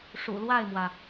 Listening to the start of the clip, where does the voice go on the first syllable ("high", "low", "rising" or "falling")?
low